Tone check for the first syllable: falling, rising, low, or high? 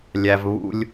low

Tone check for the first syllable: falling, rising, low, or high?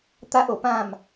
high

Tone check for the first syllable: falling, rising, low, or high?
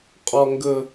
high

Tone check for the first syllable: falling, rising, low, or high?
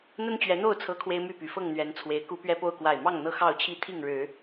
high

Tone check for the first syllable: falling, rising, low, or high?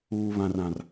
low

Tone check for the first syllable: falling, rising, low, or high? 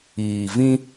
low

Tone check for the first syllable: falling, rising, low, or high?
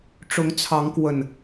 rising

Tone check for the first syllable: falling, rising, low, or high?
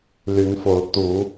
rising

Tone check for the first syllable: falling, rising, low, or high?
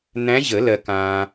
rising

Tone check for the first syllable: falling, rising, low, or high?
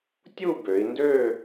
falling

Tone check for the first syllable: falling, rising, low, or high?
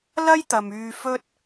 high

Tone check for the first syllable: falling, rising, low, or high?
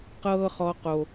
high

